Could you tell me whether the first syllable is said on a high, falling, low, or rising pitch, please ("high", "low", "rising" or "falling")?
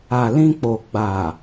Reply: low